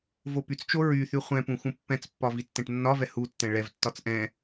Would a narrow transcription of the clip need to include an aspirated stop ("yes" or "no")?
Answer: no